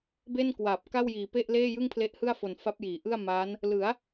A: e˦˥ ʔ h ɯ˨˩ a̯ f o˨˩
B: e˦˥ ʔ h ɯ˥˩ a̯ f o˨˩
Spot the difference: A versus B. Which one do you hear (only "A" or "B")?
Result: B